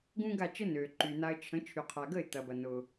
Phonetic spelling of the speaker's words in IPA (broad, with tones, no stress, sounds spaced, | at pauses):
ɡ ũ˥ ɡ a˥˩ t͡ʃ ə˥ n øː˩ ǃ yː˩ n a˧ ə̯ t͡ʃʰ ə̃˩˥ t͡ʃʰ y˩ qʰ a˩ ɡ ə˥˩ ɪ̯ t̪ ɐ˩ b ɐ˩ n ʊː˩